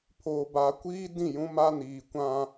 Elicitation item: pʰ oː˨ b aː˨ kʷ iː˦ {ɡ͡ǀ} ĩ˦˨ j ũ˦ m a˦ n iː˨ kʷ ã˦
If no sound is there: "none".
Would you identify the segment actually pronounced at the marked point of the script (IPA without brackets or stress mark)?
d